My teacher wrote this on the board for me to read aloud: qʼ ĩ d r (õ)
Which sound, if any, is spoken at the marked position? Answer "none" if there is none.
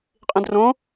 õ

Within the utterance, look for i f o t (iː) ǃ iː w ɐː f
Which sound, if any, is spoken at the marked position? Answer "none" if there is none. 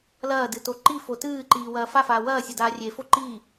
ɨː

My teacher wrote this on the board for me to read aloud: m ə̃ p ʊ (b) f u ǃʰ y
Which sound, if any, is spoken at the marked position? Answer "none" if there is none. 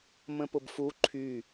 b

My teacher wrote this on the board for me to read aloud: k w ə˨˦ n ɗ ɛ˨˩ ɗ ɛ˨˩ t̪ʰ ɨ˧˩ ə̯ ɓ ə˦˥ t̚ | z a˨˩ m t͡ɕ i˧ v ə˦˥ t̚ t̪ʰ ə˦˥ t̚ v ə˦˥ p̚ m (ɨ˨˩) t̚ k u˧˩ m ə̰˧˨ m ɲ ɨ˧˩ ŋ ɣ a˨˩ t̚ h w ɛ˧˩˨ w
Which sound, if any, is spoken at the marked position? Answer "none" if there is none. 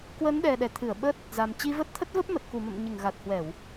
ə˨˩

